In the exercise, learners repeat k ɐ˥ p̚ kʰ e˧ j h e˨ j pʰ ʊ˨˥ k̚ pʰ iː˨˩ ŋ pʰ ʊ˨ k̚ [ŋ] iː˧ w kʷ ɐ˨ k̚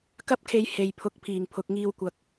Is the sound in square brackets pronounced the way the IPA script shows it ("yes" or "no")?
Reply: yes